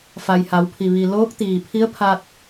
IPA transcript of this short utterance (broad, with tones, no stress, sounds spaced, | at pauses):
f a˩ j h a˩˧ w pʰ i˩ ʋ i˩ l oː˧˥ k̚ t̪ iː˩ pʰ i˧˥ ə̯ pʰ a˧ t̚